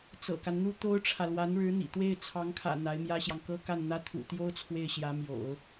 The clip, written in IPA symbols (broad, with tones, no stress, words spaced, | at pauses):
t͡sɤ̰˨˩ka˦nn̪u˥ t̪o˥ʊ̯ʈ͡ʂʰä˨ lwa˧˥nɻɻ̩˧˥n̪ḭ˨˩ t̪we˥˩ɪ̯t͡sʰɑ˧˥ŋkʰä̰˨˩ n̪a˧˥ɪ̯mjä˥ɕjɑ˨ŋ kɤ˥ka˥˩nn̪ä˥ t̪ʰṵ˨˩t̪jo˥ʊ̯ t͡sʰwe˥˩ɪ̯ɕjä˧˥mjo̰˨˩˦ʊ̯